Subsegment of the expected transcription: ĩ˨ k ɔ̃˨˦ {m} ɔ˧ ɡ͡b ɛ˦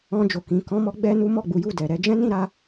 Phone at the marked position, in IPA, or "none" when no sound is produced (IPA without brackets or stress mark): m